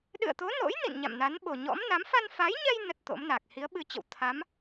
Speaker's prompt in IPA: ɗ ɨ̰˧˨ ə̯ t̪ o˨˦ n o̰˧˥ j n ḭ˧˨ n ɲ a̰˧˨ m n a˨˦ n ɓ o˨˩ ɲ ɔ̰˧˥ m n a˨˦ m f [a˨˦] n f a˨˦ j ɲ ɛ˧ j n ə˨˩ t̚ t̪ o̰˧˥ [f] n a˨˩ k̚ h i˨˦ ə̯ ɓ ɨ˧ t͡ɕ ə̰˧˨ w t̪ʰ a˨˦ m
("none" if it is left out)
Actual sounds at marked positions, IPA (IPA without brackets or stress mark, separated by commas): a˧, m